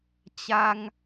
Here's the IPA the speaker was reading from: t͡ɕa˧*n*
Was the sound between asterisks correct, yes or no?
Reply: no